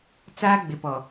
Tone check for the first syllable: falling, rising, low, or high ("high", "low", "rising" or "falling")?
high